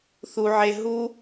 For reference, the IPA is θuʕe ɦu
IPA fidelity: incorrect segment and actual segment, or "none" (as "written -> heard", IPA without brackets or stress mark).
none